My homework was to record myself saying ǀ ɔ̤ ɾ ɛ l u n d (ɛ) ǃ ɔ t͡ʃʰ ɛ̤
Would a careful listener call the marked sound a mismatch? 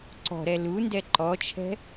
no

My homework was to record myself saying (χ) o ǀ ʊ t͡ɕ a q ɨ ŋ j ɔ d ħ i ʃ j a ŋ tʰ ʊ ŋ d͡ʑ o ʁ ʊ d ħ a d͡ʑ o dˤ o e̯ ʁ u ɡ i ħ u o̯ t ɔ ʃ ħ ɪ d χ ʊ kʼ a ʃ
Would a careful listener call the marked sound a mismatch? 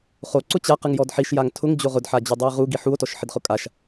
no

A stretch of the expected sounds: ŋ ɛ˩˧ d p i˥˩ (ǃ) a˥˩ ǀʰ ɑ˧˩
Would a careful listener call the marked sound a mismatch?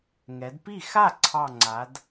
yes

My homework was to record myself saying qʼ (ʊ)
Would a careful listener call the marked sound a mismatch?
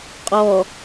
yes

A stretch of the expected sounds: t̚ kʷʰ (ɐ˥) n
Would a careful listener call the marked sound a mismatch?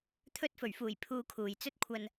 yes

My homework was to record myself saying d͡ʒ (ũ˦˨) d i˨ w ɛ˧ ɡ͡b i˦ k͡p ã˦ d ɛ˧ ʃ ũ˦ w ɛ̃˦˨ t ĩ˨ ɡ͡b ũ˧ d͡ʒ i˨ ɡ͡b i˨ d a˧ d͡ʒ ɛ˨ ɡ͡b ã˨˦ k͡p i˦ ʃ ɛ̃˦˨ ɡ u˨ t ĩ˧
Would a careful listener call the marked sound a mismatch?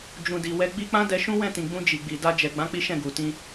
yes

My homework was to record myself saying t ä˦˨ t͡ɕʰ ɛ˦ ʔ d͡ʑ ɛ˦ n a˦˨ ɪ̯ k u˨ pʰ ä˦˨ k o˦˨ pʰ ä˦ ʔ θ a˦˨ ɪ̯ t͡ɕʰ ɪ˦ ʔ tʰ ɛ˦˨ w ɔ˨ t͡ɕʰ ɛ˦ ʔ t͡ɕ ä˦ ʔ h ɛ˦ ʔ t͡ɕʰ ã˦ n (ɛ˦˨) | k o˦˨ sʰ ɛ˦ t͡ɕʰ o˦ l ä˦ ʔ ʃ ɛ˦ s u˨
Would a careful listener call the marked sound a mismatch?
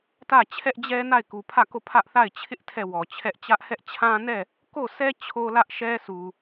no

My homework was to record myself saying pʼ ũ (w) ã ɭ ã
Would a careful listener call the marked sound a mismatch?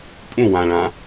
no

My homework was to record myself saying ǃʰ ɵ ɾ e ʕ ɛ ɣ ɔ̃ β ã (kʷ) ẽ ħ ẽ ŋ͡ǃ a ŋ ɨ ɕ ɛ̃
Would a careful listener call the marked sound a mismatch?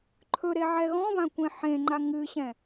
no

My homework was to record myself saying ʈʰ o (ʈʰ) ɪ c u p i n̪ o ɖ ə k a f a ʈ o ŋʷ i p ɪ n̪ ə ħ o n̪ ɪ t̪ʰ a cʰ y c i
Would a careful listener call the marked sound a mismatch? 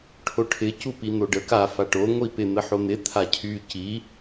no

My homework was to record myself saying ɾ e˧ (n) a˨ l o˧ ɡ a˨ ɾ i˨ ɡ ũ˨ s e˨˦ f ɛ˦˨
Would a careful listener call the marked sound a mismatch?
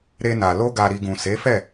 no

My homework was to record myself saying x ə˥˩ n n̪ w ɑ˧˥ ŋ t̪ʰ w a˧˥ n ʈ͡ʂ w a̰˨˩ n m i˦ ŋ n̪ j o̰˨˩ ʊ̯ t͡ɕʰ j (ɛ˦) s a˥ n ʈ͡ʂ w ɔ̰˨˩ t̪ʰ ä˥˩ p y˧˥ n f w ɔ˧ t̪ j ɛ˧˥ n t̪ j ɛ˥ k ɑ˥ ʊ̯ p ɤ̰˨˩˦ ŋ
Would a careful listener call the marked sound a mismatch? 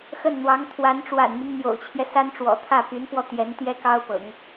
no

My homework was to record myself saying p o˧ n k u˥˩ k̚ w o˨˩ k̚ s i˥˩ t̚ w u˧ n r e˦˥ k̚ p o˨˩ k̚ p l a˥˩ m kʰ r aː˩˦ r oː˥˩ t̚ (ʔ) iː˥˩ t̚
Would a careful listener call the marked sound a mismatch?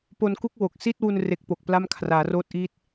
no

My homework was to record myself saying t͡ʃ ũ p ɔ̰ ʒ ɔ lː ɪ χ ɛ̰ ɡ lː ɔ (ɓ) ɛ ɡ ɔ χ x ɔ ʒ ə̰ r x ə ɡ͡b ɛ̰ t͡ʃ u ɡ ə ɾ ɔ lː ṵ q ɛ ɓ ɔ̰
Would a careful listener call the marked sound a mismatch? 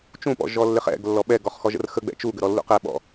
no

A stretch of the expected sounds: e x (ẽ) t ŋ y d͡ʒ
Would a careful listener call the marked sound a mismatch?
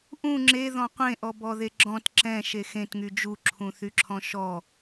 no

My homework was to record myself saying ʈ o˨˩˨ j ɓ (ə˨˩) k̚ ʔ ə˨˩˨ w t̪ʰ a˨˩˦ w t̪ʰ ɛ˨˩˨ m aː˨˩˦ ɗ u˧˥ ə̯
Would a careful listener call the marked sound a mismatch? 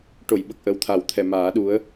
no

